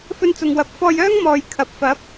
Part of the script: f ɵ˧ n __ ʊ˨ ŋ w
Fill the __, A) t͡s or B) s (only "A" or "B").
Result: A